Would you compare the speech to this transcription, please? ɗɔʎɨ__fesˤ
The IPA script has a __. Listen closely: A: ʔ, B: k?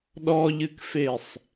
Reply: B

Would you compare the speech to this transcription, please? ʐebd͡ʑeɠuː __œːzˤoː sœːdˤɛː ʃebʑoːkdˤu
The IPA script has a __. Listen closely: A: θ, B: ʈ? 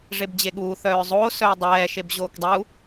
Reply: A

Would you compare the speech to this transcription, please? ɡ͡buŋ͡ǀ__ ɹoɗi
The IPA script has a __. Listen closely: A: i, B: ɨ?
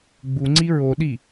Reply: A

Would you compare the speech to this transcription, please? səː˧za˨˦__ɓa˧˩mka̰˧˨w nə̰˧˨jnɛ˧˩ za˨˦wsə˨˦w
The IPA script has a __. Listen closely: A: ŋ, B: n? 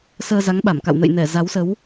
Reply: A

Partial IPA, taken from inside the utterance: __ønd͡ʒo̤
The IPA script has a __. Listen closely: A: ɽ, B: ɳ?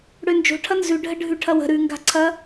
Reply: A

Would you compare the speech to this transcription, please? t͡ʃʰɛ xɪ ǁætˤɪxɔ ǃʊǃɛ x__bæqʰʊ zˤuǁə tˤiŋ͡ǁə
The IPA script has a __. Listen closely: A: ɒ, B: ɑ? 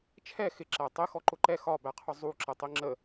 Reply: A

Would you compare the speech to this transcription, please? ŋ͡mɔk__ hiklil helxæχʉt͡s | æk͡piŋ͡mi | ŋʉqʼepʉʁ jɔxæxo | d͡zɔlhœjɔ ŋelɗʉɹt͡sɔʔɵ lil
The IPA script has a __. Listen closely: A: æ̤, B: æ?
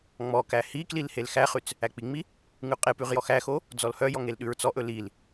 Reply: B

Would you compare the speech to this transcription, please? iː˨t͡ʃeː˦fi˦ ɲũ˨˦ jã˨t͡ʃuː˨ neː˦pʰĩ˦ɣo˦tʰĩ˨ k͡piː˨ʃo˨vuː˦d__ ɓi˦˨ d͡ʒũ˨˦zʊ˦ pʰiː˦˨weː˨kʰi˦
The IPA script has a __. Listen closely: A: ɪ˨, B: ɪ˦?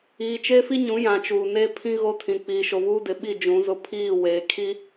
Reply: A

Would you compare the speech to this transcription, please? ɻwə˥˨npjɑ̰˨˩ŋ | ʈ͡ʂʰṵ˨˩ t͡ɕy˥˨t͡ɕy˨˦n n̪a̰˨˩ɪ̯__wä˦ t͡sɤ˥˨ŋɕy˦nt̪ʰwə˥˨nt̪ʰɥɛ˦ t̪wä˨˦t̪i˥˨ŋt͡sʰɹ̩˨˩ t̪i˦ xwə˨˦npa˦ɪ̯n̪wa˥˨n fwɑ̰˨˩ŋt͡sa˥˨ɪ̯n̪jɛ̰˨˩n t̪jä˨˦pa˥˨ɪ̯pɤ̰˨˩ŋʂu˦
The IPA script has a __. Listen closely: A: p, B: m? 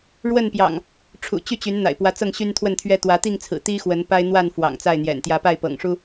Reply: A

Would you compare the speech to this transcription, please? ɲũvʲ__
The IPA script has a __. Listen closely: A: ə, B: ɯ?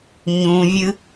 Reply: B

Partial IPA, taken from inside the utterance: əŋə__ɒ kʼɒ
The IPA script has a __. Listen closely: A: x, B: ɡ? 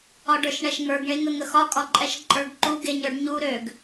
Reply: A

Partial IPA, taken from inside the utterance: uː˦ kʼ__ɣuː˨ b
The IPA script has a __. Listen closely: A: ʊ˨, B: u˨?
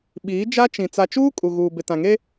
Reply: B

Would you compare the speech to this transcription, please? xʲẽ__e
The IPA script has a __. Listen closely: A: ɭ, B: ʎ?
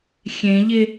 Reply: B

